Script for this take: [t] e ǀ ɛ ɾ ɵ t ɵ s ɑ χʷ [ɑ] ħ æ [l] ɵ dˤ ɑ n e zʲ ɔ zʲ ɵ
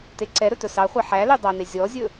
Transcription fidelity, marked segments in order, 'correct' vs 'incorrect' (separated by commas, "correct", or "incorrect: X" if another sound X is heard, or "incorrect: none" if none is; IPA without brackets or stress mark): correct, correct, correct